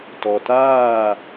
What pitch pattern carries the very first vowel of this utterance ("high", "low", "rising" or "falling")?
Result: low